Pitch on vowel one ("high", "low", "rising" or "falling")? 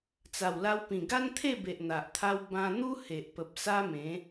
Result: low